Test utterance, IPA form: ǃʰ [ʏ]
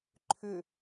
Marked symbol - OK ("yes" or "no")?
yes